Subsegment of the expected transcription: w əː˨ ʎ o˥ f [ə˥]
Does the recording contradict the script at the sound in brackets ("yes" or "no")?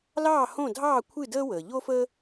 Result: no